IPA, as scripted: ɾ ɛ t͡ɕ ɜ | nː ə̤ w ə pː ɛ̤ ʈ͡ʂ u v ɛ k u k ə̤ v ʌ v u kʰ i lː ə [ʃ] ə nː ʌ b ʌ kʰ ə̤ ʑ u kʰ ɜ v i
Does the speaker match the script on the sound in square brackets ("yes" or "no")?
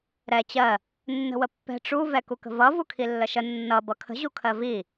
yes